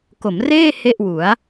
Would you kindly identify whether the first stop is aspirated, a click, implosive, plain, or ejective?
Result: plain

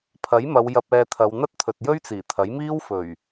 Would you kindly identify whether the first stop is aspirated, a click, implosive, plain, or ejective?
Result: aspirated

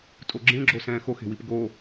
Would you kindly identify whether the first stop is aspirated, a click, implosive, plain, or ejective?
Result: ejective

